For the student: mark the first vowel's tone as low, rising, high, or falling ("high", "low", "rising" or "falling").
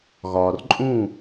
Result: low